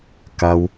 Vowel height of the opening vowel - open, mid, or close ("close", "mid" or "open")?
open